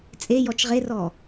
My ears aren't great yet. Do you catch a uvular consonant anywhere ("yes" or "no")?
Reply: yes